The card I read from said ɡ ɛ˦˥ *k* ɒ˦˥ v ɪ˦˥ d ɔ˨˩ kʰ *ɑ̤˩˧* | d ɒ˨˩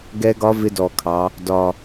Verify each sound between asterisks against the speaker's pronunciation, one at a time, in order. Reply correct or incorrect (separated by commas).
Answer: incorrect, incorrect